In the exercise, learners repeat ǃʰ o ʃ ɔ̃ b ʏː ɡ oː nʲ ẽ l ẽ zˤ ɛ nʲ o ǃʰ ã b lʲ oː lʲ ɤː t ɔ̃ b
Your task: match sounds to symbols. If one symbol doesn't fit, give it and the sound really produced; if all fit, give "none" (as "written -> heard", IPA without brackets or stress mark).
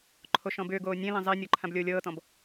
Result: none